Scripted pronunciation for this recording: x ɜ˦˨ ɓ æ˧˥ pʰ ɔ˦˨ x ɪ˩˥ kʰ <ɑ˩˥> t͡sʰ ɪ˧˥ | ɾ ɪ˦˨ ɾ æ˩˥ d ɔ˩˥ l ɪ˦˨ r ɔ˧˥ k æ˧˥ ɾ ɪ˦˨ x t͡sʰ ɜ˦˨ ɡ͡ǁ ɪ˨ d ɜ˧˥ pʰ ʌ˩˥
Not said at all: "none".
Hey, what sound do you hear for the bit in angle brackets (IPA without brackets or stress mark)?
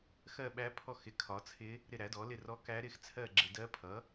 ɒ˩˥